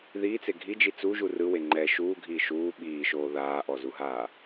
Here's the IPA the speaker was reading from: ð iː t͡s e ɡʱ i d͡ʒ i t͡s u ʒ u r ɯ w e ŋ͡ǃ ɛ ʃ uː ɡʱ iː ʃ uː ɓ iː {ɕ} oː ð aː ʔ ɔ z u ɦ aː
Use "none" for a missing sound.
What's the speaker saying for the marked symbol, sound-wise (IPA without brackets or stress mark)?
ʃ